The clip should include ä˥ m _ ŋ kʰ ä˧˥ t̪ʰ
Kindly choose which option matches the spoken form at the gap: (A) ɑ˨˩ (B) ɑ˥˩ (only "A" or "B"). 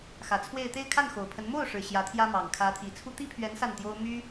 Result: A